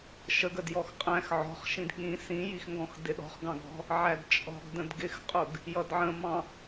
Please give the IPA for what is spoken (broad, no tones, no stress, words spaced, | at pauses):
ʃəɡ ədjɔxqʼæ̃x ʕɔ̤χʃĩd ɠĩ sĩjixŋɡɔ̃x dɪɗɔ̤χɡɑ̃ɡɔ̤ | ʕædt͡ʃʼɔ̤ɡ də̃dɡɪxqʼʊɡ | jʌdʕə̃mɑ̃